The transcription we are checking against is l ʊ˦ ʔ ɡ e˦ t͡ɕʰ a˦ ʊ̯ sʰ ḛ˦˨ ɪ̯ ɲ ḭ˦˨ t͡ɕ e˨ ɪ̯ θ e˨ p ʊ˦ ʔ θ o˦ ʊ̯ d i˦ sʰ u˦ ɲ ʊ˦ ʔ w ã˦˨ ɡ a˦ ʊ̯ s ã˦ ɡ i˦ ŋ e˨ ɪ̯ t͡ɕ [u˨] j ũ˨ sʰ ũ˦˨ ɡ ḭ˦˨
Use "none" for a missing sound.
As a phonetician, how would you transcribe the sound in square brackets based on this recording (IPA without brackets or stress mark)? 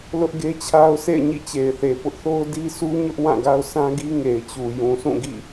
u˨